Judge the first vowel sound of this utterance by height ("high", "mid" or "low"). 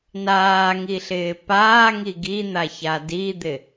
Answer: low